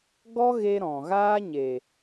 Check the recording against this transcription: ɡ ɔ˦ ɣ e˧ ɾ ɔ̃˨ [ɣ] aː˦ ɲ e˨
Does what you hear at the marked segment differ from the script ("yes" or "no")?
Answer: no